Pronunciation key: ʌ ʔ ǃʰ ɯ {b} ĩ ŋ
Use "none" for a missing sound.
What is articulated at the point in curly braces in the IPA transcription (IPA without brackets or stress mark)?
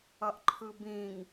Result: b